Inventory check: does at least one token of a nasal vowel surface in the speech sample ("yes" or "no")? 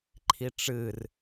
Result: no